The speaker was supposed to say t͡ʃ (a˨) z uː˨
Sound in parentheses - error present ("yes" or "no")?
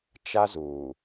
yes